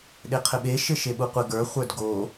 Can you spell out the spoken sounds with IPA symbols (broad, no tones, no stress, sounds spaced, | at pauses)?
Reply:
ɗ e qʰ ɘ ɓ e ʃ ɘ ʃ e ɓ u qʷ ɘ ɡ ə˞ χʷ ə˞ d ɡ o